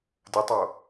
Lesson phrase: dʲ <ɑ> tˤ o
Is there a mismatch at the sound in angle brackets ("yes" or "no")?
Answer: yes